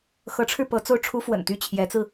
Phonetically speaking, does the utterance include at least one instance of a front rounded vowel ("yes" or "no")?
yes